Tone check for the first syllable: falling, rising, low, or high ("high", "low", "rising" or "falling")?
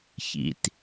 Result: low